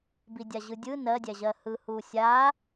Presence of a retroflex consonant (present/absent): absent